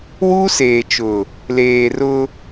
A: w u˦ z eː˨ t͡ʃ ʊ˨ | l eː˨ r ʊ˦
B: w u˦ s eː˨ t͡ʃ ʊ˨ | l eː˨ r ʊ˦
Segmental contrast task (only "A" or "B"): B